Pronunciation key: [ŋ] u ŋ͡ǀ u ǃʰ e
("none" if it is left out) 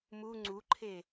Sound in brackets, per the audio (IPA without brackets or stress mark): m